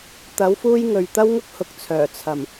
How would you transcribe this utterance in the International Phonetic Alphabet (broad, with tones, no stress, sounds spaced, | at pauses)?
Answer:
t̪ ɐ˨˥ w f uː˥ j ŋ ɵ˨ ɥ t̪ ɐ˥ w ŋ ʊ˥ k̚ h ʊ˨˥ k̚ t͡sʰ œː˨˩ t͡sʰ ɐ˨˩ m